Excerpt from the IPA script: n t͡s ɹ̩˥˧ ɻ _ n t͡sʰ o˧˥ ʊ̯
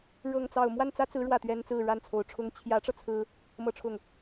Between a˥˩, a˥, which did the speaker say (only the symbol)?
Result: a˥˩